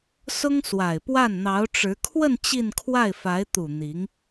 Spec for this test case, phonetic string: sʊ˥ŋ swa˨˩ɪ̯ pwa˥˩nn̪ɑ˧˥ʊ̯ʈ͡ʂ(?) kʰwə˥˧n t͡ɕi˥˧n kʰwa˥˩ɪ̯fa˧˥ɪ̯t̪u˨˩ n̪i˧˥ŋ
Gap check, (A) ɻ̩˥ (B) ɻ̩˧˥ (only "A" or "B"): B